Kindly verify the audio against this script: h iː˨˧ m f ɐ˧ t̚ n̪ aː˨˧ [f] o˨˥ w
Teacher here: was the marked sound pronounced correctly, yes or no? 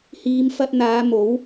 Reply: no